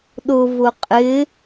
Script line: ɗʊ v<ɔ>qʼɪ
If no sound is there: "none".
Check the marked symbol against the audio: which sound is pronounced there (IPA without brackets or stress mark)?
ʊ